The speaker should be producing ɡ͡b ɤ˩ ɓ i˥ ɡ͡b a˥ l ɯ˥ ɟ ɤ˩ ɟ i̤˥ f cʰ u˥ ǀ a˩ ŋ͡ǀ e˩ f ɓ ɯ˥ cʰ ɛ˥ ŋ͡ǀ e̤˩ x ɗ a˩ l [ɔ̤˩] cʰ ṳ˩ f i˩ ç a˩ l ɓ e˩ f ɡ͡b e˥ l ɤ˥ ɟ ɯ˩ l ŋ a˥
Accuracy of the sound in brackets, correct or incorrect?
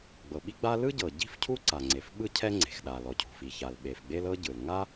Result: incorrect